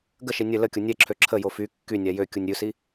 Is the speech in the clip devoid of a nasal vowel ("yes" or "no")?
yes